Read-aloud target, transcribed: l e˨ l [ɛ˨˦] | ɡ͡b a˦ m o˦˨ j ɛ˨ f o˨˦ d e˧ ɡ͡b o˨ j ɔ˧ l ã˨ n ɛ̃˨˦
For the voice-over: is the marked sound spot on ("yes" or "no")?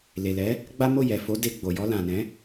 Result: yes